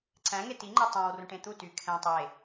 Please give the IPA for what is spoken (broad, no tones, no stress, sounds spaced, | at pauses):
ǀ æ̃ ŋ e t i ŋ͡ǃ ø tˤ æ̃ w r ũ ʈ ẽ t̪ u t y kʰ ɛ̃ tˤ e